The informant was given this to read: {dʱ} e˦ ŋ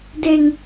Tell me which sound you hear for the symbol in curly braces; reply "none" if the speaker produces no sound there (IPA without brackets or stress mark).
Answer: d